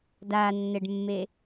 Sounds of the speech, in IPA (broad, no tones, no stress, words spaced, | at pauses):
danːɘɖmːe